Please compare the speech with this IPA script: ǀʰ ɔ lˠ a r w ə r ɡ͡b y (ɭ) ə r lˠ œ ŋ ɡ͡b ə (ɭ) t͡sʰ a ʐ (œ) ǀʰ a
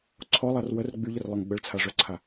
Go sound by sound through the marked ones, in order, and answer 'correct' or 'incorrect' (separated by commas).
incorrect, correct, correct